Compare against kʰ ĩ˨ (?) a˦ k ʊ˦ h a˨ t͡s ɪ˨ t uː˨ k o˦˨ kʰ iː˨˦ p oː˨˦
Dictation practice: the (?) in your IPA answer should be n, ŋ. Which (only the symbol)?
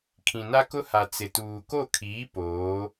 n